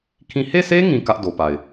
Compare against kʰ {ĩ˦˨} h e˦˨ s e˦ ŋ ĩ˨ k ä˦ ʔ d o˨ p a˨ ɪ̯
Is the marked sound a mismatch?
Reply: no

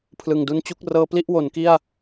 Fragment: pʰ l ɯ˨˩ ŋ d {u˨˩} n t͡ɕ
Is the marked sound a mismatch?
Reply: yes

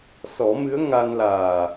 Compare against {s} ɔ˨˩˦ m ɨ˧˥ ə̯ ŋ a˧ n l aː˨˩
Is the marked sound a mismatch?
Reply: no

